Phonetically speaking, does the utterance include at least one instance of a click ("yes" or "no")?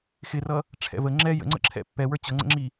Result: yes